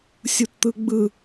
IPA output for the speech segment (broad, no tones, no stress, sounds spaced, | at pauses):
sʲ u t t̪ ɯ ɡ͡b ɯ